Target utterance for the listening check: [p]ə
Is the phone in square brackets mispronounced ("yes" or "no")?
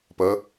no